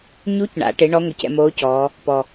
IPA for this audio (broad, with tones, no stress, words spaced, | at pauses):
ɲu˧˥cɳa̰˩˧ʈɪ˩˧ ɳɔ˧˥ŋʷɪ˩˧ cɛ̰˧moː˧˥cɔː˩˧ | pɔ˩